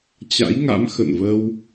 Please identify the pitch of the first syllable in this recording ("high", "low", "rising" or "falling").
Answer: rising